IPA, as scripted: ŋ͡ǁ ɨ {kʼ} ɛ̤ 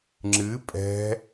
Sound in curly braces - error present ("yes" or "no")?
yes